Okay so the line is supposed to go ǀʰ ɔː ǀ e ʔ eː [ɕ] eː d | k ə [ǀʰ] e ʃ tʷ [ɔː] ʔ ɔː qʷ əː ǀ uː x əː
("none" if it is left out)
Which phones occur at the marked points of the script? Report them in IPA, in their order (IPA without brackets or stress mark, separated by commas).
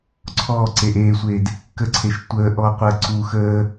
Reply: sʷ, ǀʰ, əː